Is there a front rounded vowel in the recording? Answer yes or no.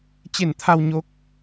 no